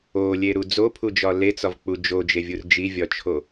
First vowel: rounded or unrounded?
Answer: rounded